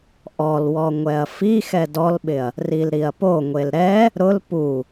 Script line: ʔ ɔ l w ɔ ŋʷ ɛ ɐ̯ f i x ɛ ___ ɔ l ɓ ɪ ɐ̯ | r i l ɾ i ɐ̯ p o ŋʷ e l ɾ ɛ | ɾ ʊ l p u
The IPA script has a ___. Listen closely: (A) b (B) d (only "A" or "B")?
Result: B